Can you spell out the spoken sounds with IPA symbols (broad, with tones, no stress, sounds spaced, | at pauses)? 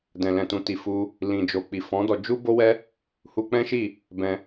d ɛ̃˨ l ɛ̃˨ t ũ˨ t i˨ f u˧ | l ĩ˨ d͡ʒ o˨ k͡p i˨ f ɔ̃˨˦ d ɔ˧ d͡ʒ u˦ b o˦ w ɛ˦ | h u˧ k͡p ɛ̃˦ ʃ i˦˨ | b ɛ̃˧